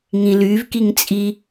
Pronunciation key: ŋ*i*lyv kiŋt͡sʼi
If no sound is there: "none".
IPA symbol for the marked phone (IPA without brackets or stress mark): ĩ